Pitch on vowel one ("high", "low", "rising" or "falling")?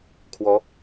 rising